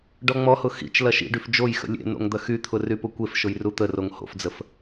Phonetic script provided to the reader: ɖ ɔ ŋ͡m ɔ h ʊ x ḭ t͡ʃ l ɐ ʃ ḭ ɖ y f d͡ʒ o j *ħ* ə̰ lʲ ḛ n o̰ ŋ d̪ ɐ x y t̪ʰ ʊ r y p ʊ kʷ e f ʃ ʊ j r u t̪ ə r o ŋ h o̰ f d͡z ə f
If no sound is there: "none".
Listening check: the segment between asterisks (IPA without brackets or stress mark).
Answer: x